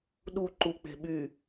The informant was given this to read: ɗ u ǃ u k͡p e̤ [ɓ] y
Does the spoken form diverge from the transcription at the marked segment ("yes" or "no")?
no